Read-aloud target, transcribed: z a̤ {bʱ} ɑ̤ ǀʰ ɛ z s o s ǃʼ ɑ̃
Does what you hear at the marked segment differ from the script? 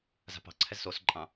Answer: yes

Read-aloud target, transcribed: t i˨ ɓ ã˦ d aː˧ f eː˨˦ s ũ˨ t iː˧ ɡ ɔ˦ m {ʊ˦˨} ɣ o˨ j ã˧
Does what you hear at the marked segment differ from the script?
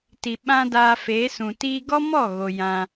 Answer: yes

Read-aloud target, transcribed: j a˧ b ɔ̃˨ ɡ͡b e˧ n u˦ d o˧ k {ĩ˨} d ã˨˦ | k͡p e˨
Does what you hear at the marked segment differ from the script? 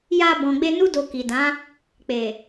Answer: yes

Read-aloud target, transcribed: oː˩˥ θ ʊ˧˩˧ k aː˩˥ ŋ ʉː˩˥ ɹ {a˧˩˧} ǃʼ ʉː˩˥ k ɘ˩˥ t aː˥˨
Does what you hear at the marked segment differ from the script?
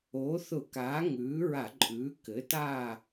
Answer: no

